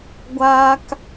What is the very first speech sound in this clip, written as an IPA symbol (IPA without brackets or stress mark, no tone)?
ɡʷ